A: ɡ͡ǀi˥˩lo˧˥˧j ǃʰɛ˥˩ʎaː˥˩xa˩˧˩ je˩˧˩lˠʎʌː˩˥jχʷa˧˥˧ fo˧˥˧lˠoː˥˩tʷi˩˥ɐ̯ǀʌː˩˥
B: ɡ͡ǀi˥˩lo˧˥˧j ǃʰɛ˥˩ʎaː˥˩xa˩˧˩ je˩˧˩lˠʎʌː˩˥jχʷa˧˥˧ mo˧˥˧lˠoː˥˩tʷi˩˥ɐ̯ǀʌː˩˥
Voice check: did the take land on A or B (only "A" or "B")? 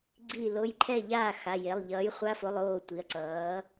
A